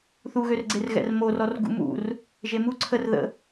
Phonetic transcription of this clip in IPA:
θ u ɣ ø r ɡ͡ǀ e r ɣ ɛ̰ r m o r ɔ r ɡ ṵ m ṵ r | ʒ e m u ǀʰ ə r ð ə̰

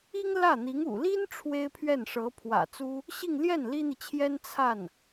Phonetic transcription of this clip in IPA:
i˥ ŋ l ä˥˩ n̪ i˧˥ ŋ ṵ˨˩ l i˥ n ʈ͡ʂʰ w e˥ ɪ̯ pʰ ɥ ɛ˥˩ n ʂ ɤ˧˥ pʰ w ä̰˨˩ t͡s u˥ | ɕ i˥˧ ŋ l j ɛ˥˩ n l i˥ n̪ i˨ t͡ɕʰ j ɛ˥ n t͡sʰ a˥˩ n

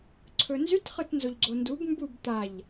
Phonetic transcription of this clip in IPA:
ǀʰ ɵ n z y t χ ɯ t n z o ʎ ɡ͡ǀ o n d u b m b u b t̪ a ʎ

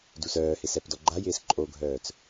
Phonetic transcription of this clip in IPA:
d u s œː h ɪ s ɛ p d ɔ ɡ͡ǃ a j ɪː s ǃʼ o ɡʱ œː t͡s

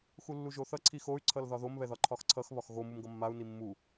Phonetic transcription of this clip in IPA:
x u lː u ʒ o θ ʌ ǀʰ i x o y̯ ǀʰ ʌ l ð ɒ ð o m β ɛ ð ɒ ǃʰ ɒ x ǀʰ ʌ x β ɒ x ɣ o m u m ɡ ʌ mː a u̯ n i mː u

